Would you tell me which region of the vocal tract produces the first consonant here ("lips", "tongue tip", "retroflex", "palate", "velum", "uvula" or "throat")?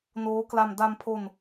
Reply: tongue tip